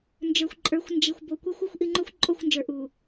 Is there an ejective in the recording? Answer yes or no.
yes